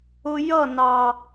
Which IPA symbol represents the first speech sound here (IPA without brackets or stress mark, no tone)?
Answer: ʊ